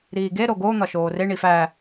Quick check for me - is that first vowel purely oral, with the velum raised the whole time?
yes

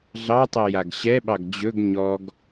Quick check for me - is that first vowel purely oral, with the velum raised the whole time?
yes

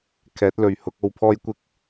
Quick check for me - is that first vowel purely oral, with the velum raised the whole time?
yes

